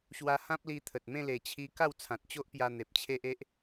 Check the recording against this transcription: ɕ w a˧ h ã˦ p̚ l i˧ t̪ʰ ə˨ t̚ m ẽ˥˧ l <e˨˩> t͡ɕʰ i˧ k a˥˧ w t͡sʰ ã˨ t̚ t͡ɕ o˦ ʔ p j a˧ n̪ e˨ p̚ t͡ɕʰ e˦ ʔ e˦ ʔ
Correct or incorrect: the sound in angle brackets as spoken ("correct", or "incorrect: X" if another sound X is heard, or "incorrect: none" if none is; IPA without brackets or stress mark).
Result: correct